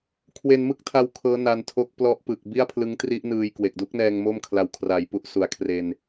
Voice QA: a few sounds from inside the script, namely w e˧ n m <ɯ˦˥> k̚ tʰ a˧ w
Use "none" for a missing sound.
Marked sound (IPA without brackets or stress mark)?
ɯ˦˥